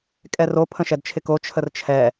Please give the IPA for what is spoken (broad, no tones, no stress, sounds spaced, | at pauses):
kʼ ɛ r o pʰ ə̃ ʃ ɛ d t͡ʃʰ ɪ k o t͡ʃʰ ə r t͡ʃʰ ɛ